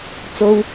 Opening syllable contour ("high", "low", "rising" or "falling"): high